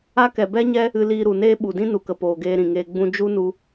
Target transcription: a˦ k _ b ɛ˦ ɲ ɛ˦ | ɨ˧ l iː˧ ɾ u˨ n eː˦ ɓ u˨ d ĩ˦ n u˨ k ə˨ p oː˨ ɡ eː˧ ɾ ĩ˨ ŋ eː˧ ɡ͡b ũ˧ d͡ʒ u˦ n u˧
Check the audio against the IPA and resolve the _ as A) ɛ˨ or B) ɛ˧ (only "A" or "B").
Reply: A